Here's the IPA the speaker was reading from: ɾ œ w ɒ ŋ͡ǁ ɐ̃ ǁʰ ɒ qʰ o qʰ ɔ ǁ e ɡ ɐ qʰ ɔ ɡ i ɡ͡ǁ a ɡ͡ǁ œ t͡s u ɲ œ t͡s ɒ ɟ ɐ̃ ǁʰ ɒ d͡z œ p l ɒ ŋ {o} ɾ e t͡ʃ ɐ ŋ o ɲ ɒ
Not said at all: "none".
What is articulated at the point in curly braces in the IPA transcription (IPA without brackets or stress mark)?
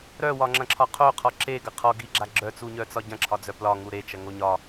u